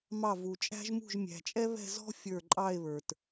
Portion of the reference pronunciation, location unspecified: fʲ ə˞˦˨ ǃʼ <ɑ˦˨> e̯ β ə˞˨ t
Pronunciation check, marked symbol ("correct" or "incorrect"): correct